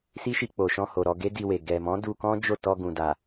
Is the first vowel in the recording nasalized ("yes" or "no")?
no